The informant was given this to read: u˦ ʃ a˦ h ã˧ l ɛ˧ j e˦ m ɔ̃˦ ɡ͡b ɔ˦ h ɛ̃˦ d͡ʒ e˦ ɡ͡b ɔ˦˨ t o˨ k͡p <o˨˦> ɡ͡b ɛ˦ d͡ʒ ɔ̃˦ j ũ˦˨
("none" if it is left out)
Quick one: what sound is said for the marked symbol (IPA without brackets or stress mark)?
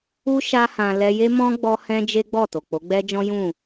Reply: o˨˦